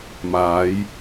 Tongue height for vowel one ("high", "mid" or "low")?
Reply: low